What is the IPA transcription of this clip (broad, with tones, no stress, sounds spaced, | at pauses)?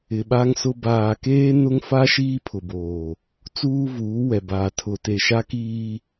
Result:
ɪ˨ ɓ a˦ ŋ s ʊ˦ b aː˨ k eː˦ n ʊ˦ ŋ f a˦ ʃ iː˦ pʰ ʊ˨ b oː˨ | t͡s uː˦ v uː˨˦ w ɛ˨ b aː˨ tʰ ʊ˨ t e˨ ʃ a˦ k iː˦